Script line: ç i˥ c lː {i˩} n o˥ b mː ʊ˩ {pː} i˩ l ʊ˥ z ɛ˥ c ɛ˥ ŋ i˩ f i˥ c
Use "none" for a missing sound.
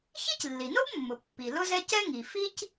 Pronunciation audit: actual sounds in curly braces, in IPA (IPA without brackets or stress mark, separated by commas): i˩, pː